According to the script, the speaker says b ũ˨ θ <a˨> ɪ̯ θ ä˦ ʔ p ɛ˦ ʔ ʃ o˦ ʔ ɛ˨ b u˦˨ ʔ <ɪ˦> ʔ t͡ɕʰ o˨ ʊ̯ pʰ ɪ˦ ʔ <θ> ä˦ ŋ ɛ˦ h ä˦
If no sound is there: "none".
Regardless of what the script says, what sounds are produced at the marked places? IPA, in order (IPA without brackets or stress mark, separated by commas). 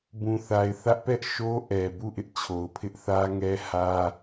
a˨, ɪ˦, θ